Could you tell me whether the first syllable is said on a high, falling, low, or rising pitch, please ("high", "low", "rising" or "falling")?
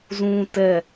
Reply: low